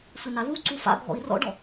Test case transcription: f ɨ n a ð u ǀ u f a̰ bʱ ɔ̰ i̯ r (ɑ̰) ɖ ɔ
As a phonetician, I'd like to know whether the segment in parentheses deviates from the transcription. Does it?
yes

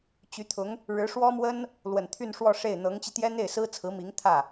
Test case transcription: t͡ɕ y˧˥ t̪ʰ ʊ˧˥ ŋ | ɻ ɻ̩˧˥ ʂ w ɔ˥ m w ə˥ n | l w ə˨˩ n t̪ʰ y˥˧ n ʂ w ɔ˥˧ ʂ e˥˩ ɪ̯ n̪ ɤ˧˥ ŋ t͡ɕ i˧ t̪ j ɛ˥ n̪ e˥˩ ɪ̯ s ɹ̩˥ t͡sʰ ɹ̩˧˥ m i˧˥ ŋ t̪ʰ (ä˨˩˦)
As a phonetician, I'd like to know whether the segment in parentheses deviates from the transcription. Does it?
yes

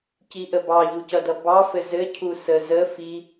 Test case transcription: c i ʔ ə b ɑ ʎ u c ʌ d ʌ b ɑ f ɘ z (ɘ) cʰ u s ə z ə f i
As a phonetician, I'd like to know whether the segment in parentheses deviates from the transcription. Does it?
no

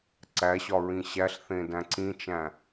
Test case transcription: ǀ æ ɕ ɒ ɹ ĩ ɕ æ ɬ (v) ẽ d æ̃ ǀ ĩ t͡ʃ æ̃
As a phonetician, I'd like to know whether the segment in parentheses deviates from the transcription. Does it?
yes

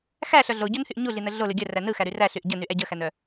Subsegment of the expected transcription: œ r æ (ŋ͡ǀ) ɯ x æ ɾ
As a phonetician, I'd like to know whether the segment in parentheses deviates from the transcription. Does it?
yes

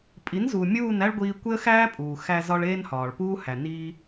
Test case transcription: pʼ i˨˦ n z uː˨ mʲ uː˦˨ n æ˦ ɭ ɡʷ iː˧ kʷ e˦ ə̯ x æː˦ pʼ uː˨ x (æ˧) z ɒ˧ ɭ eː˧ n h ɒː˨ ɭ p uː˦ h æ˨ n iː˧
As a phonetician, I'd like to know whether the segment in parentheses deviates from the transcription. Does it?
no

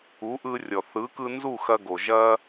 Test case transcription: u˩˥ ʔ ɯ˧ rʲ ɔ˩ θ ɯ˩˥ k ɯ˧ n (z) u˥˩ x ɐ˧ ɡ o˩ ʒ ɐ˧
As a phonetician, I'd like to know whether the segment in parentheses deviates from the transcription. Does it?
no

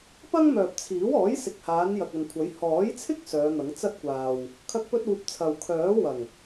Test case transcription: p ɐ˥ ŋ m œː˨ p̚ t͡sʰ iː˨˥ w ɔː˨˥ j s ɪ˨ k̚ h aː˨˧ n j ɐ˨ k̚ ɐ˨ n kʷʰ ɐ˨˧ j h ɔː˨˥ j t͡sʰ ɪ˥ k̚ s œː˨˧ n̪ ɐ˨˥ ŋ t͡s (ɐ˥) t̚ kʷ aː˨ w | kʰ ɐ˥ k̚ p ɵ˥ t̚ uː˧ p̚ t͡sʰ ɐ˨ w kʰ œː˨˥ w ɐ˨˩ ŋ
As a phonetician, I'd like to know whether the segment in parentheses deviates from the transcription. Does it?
no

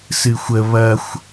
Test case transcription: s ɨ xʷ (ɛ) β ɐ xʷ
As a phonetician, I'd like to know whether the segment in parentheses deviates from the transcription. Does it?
yes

